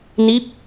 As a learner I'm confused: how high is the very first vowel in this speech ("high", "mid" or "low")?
high